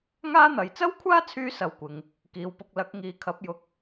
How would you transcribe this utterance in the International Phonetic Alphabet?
ŋ aː˥ n̪ ɐ˨˧ j t͡s ɐ˥ w kʷʰ aː˥ t͡sʰ yː˧ s ɐ˧ w kʷ ɪ˨ ŋ | k iː˨ w p ʊ˧ k̚ l ɐ˨˥ k̚ ŋ iː˨˧ kʰ ɐ˨˥ p̚ j ʊ˨ k̚

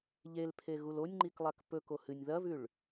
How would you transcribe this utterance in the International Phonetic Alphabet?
ʎ e l pʰ e ɣ u l o nʲ ŋ͡ǃ i k lˠ a k p ɵ k o h ɨ nʲ ð ɐ v ʉ ɭ

